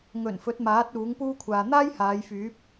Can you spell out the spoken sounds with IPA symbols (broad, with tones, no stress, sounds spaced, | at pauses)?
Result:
ŋ ɵ˨˩ n f ɵ˨˥ t̚ m aː˨˥ t̚ uː˨˥ ŋ p uː˥ kʷʰ aː˨ n̪ aː˥ j h aː˨˧ j f yː˨˥ p̚